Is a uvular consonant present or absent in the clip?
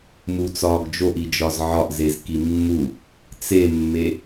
absent